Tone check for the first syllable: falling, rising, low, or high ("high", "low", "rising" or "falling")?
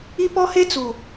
high